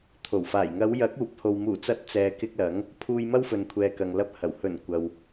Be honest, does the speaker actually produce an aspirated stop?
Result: yes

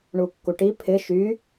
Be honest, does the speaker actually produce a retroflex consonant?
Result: yes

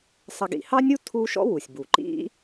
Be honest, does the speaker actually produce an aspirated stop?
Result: yes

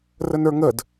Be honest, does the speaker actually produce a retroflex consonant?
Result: no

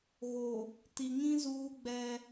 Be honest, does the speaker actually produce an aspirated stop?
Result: no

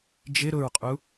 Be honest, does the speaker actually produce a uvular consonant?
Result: yes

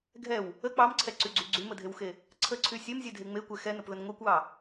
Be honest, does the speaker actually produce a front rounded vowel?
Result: yes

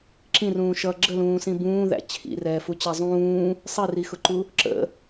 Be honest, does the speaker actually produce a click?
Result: yes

